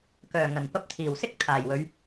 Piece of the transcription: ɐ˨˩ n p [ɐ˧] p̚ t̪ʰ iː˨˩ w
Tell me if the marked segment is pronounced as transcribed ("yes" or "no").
yes